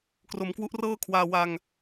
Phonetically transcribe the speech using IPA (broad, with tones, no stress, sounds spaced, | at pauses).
k r o˩˦ m k w u˦˥ ʔ r ɤː˥˩ kʰ w aː˧ w a˧ ŋ